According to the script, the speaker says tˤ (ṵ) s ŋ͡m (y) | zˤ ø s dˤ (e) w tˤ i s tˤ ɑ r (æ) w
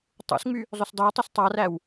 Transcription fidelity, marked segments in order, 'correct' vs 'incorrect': correct, correct, incorrect: ø, correct

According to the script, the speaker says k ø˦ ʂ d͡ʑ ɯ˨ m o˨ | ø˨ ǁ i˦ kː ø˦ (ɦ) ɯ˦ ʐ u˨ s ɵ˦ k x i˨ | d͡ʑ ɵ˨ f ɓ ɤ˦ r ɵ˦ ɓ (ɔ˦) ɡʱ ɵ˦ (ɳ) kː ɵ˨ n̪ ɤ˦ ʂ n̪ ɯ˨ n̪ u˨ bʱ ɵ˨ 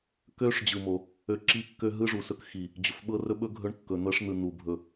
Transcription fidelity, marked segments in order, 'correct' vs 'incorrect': correct, incorrect: ɵ˦, correct

